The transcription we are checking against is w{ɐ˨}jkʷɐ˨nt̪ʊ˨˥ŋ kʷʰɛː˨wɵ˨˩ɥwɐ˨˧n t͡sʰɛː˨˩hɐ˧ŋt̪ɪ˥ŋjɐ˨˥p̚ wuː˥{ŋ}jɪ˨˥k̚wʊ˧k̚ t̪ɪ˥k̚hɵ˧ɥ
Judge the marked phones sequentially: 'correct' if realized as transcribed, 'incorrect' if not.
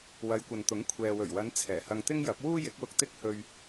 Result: incorrect: ɐ˨˧, incorrect: none

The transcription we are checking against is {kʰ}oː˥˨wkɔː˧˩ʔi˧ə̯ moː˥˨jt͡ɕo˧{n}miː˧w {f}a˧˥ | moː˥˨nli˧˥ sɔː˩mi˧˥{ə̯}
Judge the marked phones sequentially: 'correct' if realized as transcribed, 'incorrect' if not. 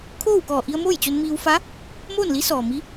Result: correct, correct, correct, incorrect: none

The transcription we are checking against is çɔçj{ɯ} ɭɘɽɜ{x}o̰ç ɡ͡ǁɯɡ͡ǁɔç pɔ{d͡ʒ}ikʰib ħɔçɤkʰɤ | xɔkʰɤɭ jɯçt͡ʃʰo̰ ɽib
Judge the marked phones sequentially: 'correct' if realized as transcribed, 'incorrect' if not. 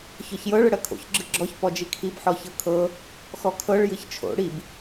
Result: incorrect: ɤ, incorrect: kʰ, correct

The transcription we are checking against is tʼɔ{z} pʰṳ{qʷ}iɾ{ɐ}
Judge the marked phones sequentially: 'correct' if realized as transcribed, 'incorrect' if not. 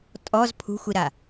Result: correct, incorrect: xʷ, incorrect: a

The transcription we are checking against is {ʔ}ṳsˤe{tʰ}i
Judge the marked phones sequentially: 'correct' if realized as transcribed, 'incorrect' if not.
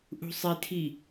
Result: correct, correct

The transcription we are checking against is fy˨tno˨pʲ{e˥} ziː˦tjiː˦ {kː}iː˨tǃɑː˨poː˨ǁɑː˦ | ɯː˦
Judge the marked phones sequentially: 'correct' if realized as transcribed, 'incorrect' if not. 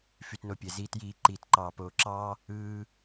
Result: incorrect: e˩, incorrect: ǃ

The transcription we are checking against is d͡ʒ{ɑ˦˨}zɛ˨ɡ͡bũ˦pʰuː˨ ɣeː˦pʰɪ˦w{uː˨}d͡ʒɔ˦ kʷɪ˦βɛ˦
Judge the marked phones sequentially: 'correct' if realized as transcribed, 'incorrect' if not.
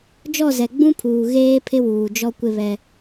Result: incorrect: ɔ˦˨, correct

